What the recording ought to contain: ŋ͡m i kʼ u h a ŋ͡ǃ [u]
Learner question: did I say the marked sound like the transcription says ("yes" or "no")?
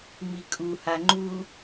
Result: yes